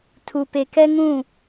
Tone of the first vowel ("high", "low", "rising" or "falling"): low